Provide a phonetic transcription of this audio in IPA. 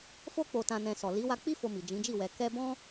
fo˧k͡po˨tã˨nɛ̃˨ sɔ˨ li˨˦ wa˧ k͡pi˦ fo˧mi˨d͡ʒĩ˨˦d͡ʒi˦˨ wɛ˨ kɛ˧bɔ̃˦

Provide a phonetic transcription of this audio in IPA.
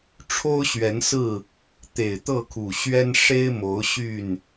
ʈ͡ʂʰo˦ʊ̯ɕɥɛ˨˦nsɹ̩˥˨ | t̪e˨˩ɪ̯t̪ɤ˥˨kʰu˨˩ɕɥɛ˦n ʂe˦ɪ̯mo˨˦ʊ̯ ɕy˥˨n

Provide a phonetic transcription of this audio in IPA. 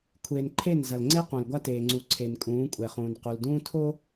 kʷʰeː˨nǃʰe˦˨n zɐ˨lŋ͡ǀe˦qũ˨l ɡʷa˦teː˨ ŋ͡ǀu˨ ǀʰe˨nkʼũː˨˦kʷʼɛ˨χũː˨n qu˨ldũː˦tʰo˦

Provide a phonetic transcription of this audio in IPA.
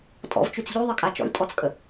tʼɔ̰vt͡ʃʉt͡s ʎʉðˤɘkʼa t͡ʃɔ̰lʲtʼɔt͡skʼə

